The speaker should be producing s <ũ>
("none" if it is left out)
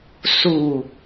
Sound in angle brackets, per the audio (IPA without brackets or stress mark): u